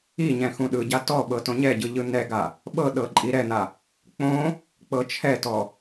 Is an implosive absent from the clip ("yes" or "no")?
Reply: no